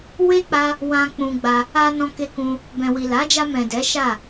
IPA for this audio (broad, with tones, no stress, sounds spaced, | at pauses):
w e˦ k͡p a˦ | w ã˧ k͡p ũ˧ ɡ͡b a˧ | a˧ n ɔ̃˧ k e˧ k ũ˧ | b ɛ̃˨ w i˨ l a˨˦ d͡ʒ a˧ m ɛ̃˨ d ɛ˨˦ ʃ a˦˨